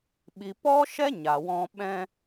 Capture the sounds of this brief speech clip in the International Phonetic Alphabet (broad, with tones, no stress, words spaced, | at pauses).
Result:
ɓi˨pɔ˦ʃɛ˦ ɲa˨wɔ̃˧ ɓɛ̃˧